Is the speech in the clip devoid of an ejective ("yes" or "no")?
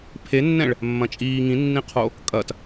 no